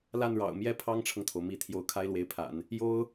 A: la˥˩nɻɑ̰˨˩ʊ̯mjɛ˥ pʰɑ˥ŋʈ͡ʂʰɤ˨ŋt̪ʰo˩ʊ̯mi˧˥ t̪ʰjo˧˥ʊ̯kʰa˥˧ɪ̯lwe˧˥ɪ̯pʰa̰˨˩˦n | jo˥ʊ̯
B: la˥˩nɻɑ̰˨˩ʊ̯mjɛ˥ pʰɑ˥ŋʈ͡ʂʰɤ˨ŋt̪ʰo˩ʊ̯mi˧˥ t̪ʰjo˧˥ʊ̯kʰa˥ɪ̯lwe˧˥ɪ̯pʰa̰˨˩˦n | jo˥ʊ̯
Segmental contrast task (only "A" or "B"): B